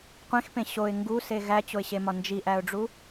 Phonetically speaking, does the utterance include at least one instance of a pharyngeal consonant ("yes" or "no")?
no